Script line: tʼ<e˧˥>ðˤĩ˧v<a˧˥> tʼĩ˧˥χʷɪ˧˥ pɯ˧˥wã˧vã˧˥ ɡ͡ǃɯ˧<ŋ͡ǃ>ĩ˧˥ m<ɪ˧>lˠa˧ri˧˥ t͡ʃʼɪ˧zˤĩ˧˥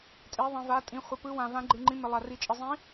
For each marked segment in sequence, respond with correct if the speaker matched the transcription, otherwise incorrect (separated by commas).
correct, correct, correct, correct